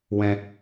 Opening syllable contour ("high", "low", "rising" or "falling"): high